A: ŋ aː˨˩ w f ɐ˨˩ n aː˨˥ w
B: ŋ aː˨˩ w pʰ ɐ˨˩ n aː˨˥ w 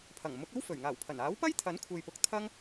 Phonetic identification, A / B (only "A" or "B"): B